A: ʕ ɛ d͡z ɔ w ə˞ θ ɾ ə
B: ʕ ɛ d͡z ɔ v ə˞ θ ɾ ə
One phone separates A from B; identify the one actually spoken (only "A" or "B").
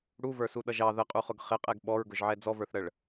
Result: B